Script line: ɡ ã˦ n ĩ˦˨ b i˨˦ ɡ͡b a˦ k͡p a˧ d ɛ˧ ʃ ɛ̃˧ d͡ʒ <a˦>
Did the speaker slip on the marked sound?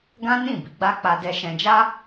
no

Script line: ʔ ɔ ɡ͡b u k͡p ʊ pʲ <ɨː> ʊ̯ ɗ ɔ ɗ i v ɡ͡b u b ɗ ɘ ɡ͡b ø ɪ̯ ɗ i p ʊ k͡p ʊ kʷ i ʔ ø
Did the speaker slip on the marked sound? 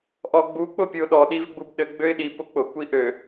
yes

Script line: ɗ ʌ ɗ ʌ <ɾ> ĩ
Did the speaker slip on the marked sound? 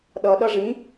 yes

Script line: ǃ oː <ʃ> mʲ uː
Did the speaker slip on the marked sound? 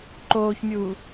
yes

